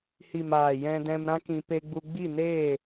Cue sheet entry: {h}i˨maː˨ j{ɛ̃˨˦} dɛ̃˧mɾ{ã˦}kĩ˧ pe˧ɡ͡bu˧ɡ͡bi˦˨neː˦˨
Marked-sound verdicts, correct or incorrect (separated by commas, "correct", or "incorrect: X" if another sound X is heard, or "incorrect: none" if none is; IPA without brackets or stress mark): correct, incorrect: ɛ̃˧, correct